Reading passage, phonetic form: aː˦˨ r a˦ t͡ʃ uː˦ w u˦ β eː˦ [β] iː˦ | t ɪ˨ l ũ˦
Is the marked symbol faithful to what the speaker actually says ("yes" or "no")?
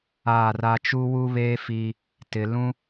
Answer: no